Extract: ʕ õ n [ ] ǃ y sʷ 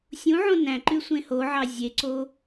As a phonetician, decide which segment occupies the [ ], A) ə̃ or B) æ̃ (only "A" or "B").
B